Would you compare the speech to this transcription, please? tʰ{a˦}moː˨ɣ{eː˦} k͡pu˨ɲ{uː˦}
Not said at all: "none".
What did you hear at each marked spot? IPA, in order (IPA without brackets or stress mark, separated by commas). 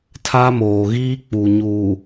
a˦, iː˦, uː˨